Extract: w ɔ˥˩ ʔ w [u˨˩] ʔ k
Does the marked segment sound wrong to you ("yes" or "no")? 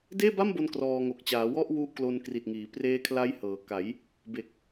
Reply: yes